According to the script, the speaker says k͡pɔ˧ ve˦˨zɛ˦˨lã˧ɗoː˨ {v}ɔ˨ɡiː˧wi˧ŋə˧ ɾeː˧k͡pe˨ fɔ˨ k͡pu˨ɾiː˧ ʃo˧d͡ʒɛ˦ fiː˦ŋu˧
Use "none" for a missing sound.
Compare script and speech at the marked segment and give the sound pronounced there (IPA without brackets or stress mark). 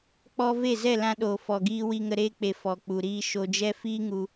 f